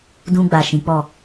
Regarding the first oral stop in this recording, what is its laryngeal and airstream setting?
plain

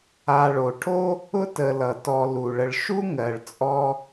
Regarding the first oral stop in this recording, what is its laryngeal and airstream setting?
aspirated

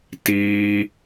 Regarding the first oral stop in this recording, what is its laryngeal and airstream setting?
plain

